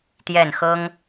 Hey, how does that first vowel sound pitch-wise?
falling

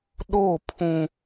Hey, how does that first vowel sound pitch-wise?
falling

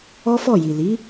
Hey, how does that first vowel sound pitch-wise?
high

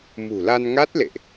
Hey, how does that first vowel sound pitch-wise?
low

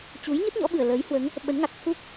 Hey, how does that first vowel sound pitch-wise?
rising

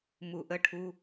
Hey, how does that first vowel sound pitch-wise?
low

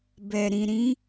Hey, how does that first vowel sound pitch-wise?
low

